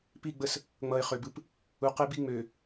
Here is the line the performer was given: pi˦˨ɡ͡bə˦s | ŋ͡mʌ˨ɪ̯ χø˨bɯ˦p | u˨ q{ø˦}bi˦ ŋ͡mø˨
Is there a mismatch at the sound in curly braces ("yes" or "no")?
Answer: yes